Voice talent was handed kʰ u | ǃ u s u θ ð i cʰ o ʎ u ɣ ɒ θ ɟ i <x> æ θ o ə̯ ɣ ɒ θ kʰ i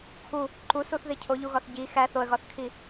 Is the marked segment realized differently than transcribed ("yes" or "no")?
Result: no